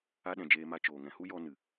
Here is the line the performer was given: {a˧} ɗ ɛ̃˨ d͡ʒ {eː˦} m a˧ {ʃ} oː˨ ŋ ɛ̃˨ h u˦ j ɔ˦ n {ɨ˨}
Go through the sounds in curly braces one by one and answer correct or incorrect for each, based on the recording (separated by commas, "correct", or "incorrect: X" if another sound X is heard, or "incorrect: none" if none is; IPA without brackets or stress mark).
correct, incorrect: eː˧, incorrect: t͡ʃ, correct